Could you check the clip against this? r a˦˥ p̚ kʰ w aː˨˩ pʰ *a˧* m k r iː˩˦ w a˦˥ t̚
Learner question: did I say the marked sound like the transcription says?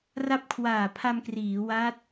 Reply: yes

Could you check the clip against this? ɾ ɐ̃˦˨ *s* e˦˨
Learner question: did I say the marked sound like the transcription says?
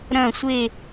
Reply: no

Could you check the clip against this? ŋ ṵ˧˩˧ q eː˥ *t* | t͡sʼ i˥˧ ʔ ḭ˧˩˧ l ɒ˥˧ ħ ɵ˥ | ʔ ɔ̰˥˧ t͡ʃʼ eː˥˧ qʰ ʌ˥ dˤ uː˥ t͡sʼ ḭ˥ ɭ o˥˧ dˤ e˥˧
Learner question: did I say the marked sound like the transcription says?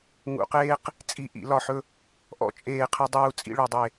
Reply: no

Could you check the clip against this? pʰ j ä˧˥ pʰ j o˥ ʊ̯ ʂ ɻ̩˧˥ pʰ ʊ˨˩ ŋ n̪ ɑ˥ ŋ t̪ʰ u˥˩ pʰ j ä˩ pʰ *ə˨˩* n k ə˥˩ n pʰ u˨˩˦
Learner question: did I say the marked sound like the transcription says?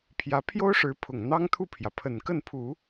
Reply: yes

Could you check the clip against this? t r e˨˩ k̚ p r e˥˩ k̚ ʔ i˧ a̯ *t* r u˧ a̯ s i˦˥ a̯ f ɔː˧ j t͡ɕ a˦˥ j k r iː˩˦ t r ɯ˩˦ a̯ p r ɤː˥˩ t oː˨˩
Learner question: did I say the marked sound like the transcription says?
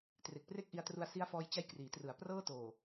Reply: yes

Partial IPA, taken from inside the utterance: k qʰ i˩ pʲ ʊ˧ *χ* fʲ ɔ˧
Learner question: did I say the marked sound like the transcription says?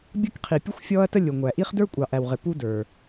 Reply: no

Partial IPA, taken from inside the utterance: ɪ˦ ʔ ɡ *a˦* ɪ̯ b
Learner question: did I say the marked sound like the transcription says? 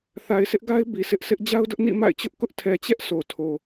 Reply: yes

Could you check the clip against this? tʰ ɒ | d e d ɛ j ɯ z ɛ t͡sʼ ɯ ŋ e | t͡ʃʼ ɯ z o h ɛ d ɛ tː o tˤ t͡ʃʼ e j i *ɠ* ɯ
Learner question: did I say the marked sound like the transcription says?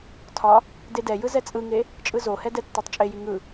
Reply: no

